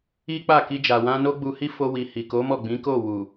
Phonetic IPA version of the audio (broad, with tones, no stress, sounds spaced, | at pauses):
i˦ k͡p a˦˨ k i˧ d͡ʒ a˨ w ã˧ n o˦ ɡ͡b u˧ h i˦ f o˧ w i˨ h i˨ k o˨˦ m ɔ˦˨ ɡ͡b ĩ˨˦ k o˦˨ w u˨